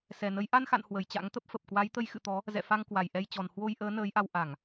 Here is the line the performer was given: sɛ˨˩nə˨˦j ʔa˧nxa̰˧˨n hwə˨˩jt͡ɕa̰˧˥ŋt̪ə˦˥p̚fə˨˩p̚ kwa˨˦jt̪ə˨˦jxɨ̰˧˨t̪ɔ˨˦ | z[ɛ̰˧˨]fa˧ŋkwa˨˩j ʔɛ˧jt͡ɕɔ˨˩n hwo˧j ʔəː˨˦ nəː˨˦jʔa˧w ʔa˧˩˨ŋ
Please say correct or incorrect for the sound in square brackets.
correct